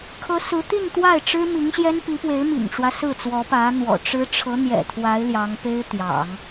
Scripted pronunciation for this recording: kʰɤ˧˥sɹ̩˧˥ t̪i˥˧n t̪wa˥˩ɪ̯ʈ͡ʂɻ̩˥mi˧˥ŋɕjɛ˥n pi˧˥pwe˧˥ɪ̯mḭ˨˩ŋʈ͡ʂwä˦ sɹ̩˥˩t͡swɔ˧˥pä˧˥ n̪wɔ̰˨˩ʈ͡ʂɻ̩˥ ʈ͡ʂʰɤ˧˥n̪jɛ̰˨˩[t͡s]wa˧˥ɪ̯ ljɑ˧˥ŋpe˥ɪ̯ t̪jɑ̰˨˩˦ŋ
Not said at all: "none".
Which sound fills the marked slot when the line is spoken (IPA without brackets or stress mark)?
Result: t̪ʰ